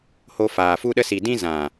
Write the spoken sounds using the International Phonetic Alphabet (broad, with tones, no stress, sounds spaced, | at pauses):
h o˧ f aː˨ f u˧ ɗ ə˧ s i˨ d ĩ˧ z ã˨